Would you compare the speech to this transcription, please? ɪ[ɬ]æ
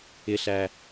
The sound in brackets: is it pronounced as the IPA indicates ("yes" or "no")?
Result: yes